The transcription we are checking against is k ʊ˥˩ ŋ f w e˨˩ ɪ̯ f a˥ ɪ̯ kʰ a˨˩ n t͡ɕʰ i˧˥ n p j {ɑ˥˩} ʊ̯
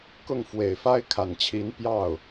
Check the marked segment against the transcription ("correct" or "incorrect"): correct